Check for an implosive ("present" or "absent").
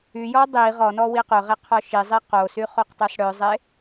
absent